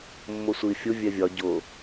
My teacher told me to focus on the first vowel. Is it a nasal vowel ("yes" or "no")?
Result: no